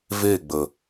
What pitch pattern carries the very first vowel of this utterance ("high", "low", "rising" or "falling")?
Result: falling